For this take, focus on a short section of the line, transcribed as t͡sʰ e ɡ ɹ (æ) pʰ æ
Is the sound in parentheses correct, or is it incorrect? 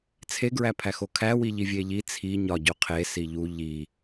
correct